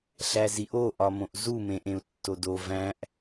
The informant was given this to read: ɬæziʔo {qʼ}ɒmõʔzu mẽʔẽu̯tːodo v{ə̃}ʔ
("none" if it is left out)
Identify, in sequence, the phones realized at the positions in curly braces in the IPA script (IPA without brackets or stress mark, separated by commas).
ʔ, æ̃